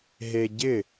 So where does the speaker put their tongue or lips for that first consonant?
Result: throat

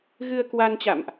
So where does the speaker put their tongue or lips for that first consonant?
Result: velum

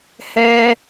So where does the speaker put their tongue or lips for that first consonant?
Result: throat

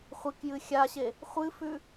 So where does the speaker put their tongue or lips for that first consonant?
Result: uvula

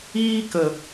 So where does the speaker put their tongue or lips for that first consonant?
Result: velum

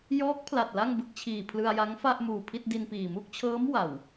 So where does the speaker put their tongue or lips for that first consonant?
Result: palate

